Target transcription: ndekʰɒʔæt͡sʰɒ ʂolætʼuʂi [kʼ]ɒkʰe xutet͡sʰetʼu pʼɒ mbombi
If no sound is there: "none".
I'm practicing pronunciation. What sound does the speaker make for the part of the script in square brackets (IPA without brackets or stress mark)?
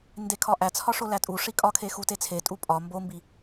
kʼ